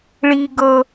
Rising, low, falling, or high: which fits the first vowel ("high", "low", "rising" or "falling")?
high